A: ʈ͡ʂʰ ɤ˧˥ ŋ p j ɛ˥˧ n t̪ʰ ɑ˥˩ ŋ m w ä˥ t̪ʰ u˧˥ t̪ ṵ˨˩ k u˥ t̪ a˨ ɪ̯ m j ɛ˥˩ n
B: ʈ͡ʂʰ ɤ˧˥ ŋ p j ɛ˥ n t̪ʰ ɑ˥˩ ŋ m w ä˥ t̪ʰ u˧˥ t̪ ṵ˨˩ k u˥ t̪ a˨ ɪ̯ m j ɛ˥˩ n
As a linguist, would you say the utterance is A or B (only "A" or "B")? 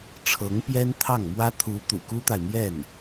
B